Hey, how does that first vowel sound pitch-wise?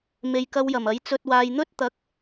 low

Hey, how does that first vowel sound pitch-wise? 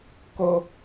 high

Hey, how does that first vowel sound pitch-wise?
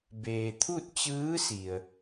low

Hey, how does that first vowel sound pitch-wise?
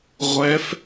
rising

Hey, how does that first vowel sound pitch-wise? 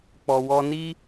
low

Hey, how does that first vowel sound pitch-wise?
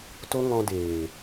high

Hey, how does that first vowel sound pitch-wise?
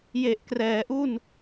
low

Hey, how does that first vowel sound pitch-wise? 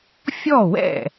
falling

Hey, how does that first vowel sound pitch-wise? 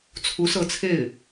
rising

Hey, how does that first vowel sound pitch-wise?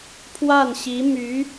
falling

